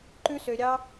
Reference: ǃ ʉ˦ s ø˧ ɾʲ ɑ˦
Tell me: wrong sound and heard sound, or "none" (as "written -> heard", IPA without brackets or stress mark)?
none